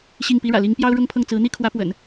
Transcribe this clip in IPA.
ɕi˥˩ŋpi˥ɻä̰˨˩ li˧˥ŋpjɑ˥ʊ̯ ɻʊ˥ŋpʰɤ˥˩ŋt͡sɹ̩˧˥ n̪i˥kʰwä˧˥pwə̰˨˩˦n

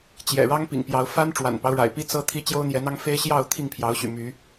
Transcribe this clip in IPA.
t͡ɕjɛ̰˨˩ɻɑ˦ŋ pḭ˨˩ŋpjɑ˨˦ʊ̯ fa˦n ʈ͡ʂwa̰˨˩npɑ˦ʊ̯ɻa̰˨˩ɪ̯pi˦ t͡sɤ˦t̪ʰi˦ t͡ɕjo˦ʊ̯n̪jɛ˨˦n̪ɑ˦ŋ fe˦ɪ̯ ɕjɑ˥˨ʊ̯ t̪ʰi˥˨ŋpʰjɑ˨˦ʊ̯ɕy̰˨˩ my˨˦

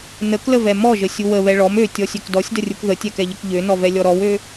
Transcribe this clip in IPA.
nəkləvɛ mɔʒəsʲu wəβɛ ɭɔm øtʲɔsʲøk dɔsʲdərʲuk ðətʲɛkɛʎək ʎønɔvɛlʲɔ ɾɔwø

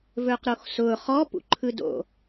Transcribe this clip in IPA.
vɵːqɾoxsʊː χɔpṵ ǃʰɯdo̰

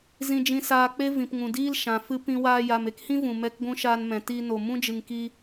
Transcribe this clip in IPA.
zĩ˧d͡ʒĩ˧saː˧k͡pe˦ vĩ˨pŋũ˨diː˦l ʃã˨ fɨ˦ pĩ˧waː˧ja˨m e˧khĩ˦ vũ˨mɛ˦˨kɡʷũ˦ ʃaː˧nmɛ̃˨ ti˧no˨ mũ˦d͡ʒɨ˨ŋki˧

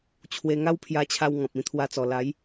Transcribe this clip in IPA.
t͡ɕʰwe˧ŋa˦wpʰja˧t͡ɕʰa˧w ŋɔ̃˨p̚ĩ˧t̪ʰwa˧t͡sɔ˨˩ la˨˦j

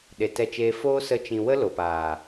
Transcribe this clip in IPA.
ɗe˨tɛ˧t͡ʃeː˧ foː˦sə˧ t͡ʃĩ˨ wə˦ lo˨paː˨

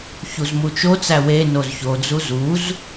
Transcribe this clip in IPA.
çuzmut͡ʃot͡sæ we nozçod͡zu zuz

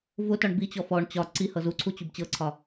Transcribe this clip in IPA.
vʊtɒɳ bit͡ɕɔ fɔɳ t͡ɕɒ ǀihɤ zuǀʰut͡ɕub t͡ɕɤǀʰɒ

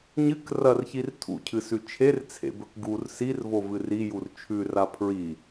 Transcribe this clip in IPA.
ɲɨk rɐrçir tʰṵcʰɨsʉ t͡ʃʰert͡sʰḛbɵk ɡur sirvovɨ rijur t͡ʃʰʉra pʰɹi

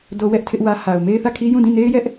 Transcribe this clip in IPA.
do˦wɛ˦ʔtʰɪ˦ʔwä˦ ha˨ʊ̯ me˦ɪ̯θä˦˨kʰi˦ jũ˦˨dĩ˦˨ne˦ɪ̯jɛ˦ʔ

